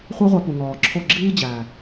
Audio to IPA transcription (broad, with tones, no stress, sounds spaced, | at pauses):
χʷ æ˦ ʁʷ æ˧ p u˨ ŋ ɒː˨ ǁʰ o˦˨ ɡ͡ǁ iː˦ d͡ʑ æː˨